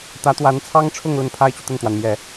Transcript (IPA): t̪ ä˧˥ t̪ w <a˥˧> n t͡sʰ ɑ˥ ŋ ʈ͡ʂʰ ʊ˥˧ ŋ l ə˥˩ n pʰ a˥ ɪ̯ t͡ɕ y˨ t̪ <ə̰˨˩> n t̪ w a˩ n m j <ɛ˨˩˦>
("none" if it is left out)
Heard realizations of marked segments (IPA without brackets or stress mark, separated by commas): a˧˥, ə˥˩, ɛ˨˩˦